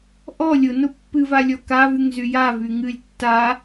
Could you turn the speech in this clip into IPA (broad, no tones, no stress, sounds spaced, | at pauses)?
ʔ ɔ lʲ ʊ n ʊ pː ɨ v a lʲ ɔ k a v y ŋ z y j a v y ŋ ɨ lʲ tː a